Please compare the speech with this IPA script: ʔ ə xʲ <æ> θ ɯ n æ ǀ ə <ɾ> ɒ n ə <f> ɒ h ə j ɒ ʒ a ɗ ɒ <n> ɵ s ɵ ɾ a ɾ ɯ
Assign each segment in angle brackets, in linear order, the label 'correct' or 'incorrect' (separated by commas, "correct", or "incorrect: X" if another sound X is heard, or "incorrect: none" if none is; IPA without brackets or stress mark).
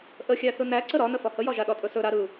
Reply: correct, correct, correct, incorrect: tʼ